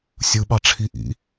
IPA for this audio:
sʲ ɯ ɓ ɑ ʈ͡ʂʰ i ʔ ḭ

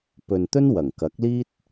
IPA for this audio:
p ɵ˨ n t̪ ɵ˥ n w ɐ˨˩ ŋ k ɐ˨˥ k̚ l iː˥ t̚

